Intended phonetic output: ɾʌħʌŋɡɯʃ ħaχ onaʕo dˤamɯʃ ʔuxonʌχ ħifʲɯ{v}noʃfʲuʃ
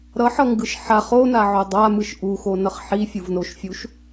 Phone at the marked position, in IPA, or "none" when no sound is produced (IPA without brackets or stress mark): v